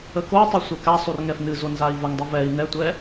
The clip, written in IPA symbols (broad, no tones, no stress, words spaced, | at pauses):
əkotˤu sʷɛkasˤur ŋɛfnɨzo nzai̯vəŋdˤu vɛi̯ nɛtʷɛ